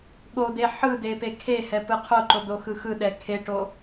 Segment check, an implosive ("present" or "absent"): present